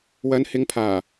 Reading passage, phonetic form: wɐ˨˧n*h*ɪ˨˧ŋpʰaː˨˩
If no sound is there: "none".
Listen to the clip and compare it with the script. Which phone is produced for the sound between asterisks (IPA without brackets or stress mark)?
h